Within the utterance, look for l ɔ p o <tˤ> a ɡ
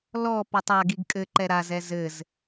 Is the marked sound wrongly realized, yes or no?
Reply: no